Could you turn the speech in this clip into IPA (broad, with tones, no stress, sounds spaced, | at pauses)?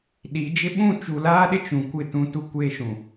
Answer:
ɗ i˨˦ d͡ʒ ɪ˦ ɓ ũ˦˨ t͡ʃ u˨ l aː˦ ɗ ɪ˦ t͡ʃ ũ˨ kʷ ɪ˦˨ t ũ˦ t u˦ kʷ eː˦ ʃ ũ˨